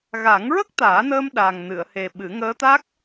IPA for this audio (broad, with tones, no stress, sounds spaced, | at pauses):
ɣ a˨˩˦ ŋ ɹ ə˦˥ k̚ t̪ aː˨˩˦ n əː˧ m ɗ a˨˩ ŋ n ɨ˨˩˨ ə̯ h e˨˩ ɓ ɨ˨˩˦ ŋ əː˧˥ t̪ a˦˥ k̚